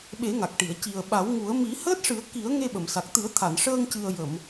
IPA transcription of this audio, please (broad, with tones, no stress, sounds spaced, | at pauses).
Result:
ɓ e˨˩˦ ŋ a˨˩ k̚ ʈ i˨˩˨ ə̯ c i˨˩ ə̯ ɓ a˨˩˦ w ŋ u˨˩˦ ə̯ m i˨˩˦ h əː˦˥ t̚ ʂ ɨ˨˩˦ ə̯ k i˨˩˦ ə̯ ŋ e˧ ɓ ə˨˩˨ m s a˨˩ k̚ t̪ ɨ˨˩˦ ə̯ t̪ʰ a˨˩˨ n ʂ əː˧ ŋ c ɨ˨˩ ə̯ j ə˨˩˨ m